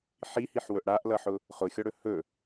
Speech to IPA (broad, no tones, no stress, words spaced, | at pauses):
ħihiħwɵʔ ɽaʔlʌħʊ | χʊxʲɔɽɵ hɵ